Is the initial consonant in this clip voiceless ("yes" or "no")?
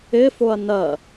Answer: yes